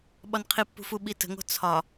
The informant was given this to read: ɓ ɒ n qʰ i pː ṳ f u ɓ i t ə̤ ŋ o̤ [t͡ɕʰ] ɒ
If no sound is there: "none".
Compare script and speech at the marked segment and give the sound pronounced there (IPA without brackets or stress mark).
t͡sʰ